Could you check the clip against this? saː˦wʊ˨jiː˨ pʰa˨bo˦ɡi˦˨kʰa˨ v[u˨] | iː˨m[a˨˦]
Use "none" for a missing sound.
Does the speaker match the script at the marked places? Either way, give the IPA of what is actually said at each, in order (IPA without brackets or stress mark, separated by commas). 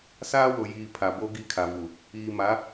u˨, a˨˦